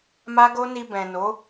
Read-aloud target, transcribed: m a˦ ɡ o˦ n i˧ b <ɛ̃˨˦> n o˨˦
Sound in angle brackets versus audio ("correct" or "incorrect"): incorrect